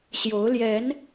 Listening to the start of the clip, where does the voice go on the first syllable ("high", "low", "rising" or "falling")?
rising